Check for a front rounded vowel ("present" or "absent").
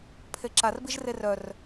present